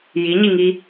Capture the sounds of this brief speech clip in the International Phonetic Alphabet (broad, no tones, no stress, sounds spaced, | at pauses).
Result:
j i ɲ i ŋ i